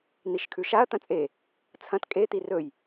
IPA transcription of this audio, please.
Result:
n̪ i ʃ kʰ ʉ ʃ a ɐ̯ t̪ ɐ̃ t͡sʼ e | t͡sʰ ɐ̃ t kʼ e t̪ i r ɵ j

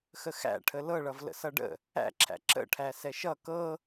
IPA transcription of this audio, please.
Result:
x ə x æ̰ ʈʰ ə l ɤ ɭ ʌ v l ə̰ s ʌ ɖ ə̰ | æ̰ ǁʰ æ̰ ǁ ə̰ ʈʰ æ s ɛ ʃ ʌ k ɤ

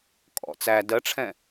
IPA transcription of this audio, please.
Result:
kʼ ɔ̰ t͡s æ d ɜ ʈ͡ʂʰ ɛ̃

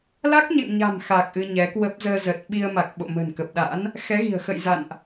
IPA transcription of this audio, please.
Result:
l a˦˥ k̚ ɲ ɛ̰˧˨ ŋ ɲ a̤˨˩ m x a˨˩ k̚ ʔ ɨ˧ ɲ ɛ˨˦ k w ə˦˥ p̚ z əː˧ z ə˨˩ t̚ ɓ i˧ ə̯ m a˨˩ k̚ ɓ o̰˧˨ m ə̤˨˩ n k ə˨˩ p̚ ɗ a̰˧˥ n | x ɛ˨˦ ɣ i̤˨˩ ə̯ x ə̰˧˨ j z a̰˧˨ n ʔ

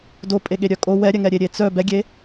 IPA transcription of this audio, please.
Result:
d o pʼ e ɠ e ɾʲ œ kʼ o w ɛ ɾʲ ɛ ŋ ɛ ɾʲ e ɾʲ e t͡s œ b ɛ ɡʲ e

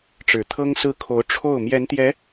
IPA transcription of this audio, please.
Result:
ʈ͡ʂ ɻ̩˨˩ t̪ʰ ɤ˥ ŋ s ɹ̩˥˩ kʰ o˧˥ ʊ̯ ʈ͡ʂʰ o˥˩ ʊ̯ m j ɛ˧˥ n t̪ j ɛ˧˥

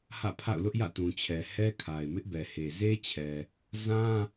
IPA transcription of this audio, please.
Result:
h ä̰˦˨ pʰ a̰˦˨ ʊ̯ l ʊ˦ ʔ j ä̰˦˨ t ũ˨ t͡ɕʰ ɛ˨ h ɛ˦ kʰ a˨ ɪ̯ m ɪ˦ ʔ b ɛ˨ h e˨ z e˦ t͡ɕʰ ɛ˨ | z ã˦

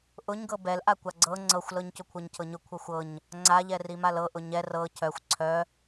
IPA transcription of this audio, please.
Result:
ʔ ʊ ɲ ɡ ɤ b ɛ l ʔ a kʷ a ɡ͡ǀ ɤ ŋ͡ǀ ɤ xʷ l ɤ ɲ c ʊ kʷʰ ɤ ɲ cʰ ɤ ɲ ʊ kʷʰ ɤ xʷ ɤ ɲ | ŋ͡ǀ a ʎ ɛ r i m a l ɤ ʔ ʊ ɲ ɛ r ɤ cʰ œ xʷ ǀʰ œ

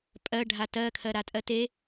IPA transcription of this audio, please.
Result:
pʼ ɜ ɖʱ a t ɜ kʰ ɜ ɾ a tʼ ɜ t e

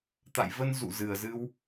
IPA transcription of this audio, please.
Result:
t̪ a̰˧˨ j v ə˧ n z ṵ˧˨ z ɨ˨˩ ə̯ z ɨ˧ w

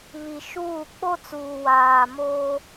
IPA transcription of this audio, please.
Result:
β i˨ ʃ uː˦˨ k͡p o˦ t͡s uː˨ w aː˨ m oː˦

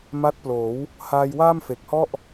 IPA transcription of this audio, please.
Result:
m a˦˥ t̚ p l oː˩˦ w | h aː˧ j w aː˥˩ m f e˨˩ k̚ h ɔ˥˩ ʔ

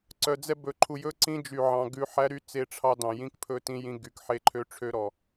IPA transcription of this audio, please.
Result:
ǀ œ˨ d͡z ɛ˦ b ɵ˨ ǃʰ u˨ j ɵ˦ ǀ ĩ˦ d͡ʒ y˨ ʕ ɑ̃˨ ɡ ʉ˨˦ ħ æ˦ ɾ y˦ t͡s e˦˨ ʈ͡ʂʰ ɑ˦ d ɑ̃˨ j ĩ˦ k pʰ ɵ˦ t ĩ˦ j ĩ˦ ɡ y˨ k ħ e˦ ǃʰ ø˦ ʈ͡ʂʰ ø˦ ɾ ɔ˨

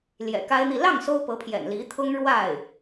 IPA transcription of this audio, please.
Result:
l j ɛ̰˨˩ k a˥ ɪ̯ n̪ i˥˧ l ɑ˥˩ ŋ s o˥ ʊ̯ p ɤ˧˥ pʰ j ɛ̰˨˩ n l i˧˥ t̪ʰ ʊ˥ ŋ ɻ w a˥˩ ɪ̯

